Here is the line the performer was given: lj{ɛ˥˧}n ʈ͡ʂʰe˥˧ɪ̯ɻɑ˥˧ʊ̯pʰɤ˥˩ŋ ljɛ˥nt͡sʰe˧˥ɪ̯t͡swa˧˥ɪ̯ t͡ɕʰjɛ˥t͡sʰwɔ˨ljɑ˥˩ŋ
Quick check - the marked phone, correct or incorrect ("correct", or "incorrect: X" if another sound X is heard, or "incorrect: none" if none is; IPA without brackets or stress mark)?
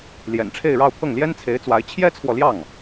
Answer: incorrect: ɛ̰˨˩